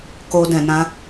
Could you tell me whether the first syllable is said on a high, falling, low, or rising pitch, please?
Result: high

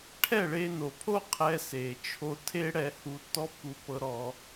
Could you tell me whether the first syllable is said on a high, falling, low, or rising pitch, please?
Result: falling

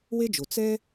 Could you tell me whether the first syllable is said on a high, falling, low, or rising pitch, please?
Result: high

